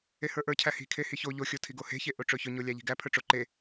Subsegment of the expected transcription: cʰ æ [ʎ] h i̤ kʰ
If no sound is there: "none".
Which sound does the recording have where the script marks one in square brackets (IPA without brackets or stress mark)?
none